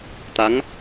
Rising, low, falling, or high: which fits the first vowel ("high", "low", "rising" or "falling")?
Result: rising